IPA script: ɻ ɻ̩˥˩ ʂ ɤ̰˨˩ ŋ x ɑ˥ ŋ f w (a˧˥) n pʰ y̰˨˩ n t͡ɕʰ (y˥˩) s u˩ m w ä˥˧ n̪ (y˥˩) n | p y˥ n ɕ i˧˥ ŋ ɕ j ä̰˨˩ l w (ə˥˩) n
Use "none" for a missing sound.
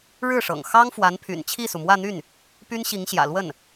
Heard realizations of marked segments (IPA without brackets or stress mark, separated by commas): a˧˥, i˥˩, y˥˩, ə˥˩